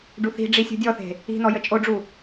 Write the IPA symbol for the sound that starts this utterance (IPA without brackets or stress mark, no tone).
ɖ